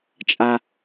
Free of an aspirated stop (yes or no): yes